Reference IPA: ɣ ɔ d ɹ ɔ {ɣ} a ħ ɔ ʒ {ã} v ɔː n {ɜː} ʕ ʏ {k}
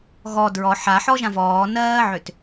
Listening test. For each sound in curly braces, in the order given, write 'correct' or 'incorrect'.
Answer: incorrect, correct, correct, incorrect

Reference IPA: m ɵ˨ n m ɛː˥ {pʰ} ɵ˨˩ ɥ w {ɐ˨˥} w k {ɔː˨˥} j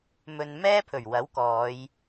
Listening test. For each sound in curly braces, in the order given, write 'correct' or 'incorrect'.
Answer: correct, correct, incorrect

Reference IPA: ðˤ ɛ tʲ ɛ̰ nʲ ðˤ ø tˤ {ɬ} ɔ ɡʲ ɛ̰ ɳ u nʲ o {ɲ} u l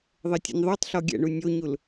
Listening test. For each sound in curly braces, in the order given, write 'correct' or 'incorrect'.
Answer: correct, correct

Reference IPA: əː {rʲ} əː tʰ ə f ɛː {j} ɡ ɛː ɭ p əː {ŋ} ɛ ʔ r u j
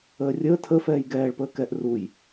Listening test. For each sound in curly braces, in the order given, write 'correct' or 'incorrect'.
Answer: correct, correct, incorrect

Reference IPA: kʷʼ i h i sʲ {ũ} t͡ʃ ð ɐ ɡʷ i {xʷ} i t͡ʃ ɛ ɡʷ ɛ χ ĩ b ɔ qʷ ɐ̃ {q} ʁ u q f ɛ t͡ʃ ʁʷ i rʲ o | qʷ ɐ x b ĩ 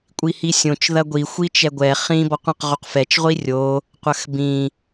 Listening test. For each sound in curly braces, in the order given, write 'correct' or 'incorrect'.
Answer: incorrect, correct, correct

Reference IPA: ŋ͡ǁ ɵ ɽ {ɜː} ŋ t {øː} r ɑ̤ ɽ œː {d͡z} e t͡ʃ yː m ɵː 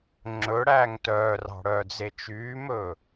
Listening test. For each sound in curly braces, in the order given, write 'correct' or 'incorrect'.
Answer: incorrect, incorrect, correct

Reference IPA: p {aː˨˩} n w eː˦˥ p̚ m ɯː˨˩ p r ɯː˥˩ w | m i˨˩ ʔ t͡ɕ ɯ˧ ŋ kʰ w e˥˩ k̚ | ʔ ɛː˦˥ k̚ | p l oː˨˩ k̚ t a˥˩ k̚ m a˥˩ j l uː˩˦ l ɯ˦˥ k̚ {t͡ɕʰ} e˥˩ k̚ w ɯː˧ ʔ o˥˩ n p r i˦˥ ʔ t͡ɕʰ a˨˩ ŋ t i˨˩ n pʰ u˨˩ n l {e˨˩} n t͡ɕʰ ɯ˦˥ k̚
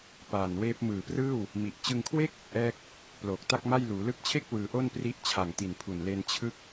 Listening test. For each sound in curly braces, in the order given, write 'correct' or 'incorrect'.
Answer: correct, correct, incorrect

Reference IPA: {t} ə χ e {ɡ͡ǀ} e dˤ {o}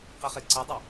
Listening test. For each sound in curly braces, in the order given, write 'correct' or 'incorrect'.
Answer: incorrect, incorrect, correct

